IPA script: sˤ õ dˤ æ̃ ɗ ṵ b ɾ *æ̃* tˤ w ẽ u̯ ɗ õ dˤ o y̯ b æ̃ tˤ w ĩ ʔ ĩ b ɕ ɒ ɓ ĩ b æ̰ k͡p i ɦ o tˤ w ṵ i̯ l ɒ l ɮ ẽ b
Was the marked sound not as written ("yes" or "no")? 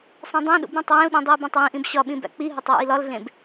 no